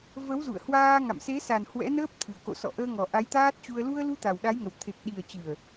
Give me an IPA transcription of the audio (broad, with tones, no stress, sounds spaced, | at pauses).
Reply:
v ə˨˦ w z ṵ˧˨ ə̯ h w aː˧ ŋ a̰˧˨ m s e˨˦ s a˨˩ n h w ɛ̰˧˥ n əː˦˥ p̚ t̪ʰ ɨ˨˩ ə̯ k o̰˧˨ s ɔ̰˧˨ ʔ əː˧ ŋ ɔ˨˩ ʔ a˨˦ j t̪ aː˦˥ t̚ t͡ɕ u˧ ə̯ l u˧ ə̯ l u˧ t̪ a˨˩ w ɗ a˨˦ j ŋ ə˨˩ w t̪ʰ e˨˩ k̚ ɗ i˨˩ ə̯ t͡ɕ ɨ˨˩ ə̯